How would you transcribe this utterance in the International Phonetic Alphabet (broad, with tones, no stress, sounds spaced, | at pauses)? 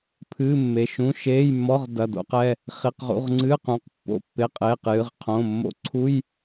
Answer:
pʰ ɨː˧˥˧ mː e˩˧˩ ʃ ũ˧˥˧ ʃ eː˧˥˧ j mː ɔ˧˥˧ ʁ d ɐ˩˧˩ d o̰˧˥˧ q ɛ˩˧˩ | χ i˩˧˩ q ʁ ṵ˩˧˩ ʁ ŋ͡ǀ ɨː˧˥˧ q ũ˩˧˩ q pː o̰˩˧˩ pː e˩˧˩ qʼ eː˩˧˩ q j ɨ˩˧˩ ʁ qʰ õ˩˧˩ mː o̰˧˥˧ ǀʰ u˧˥˧ j